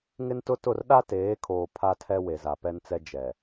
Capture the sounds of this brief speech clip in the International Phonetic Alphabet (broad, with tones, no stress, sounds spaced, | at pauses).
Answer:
ŋ ɪ˦ n t ʊ˦ t ʊ˦˨ r ɗ a˦ t eː˨˦ kʰ oː˨ pʰ a˦ tʰ ɛ˦ w e˨ z a˨ p ɛ˦ n t͡s ɛ˦ d͡ʒ ɛ˨